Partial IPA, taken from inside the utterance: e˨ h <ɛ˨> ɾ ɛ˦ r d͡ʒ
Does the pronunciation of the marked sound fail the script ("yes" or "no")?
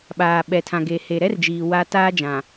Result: yes